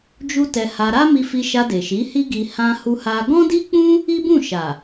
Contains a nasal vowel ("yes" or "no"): yes